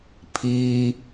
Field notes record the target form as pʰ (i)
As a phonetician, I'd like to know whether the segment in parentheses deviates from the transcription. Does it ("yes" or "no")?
no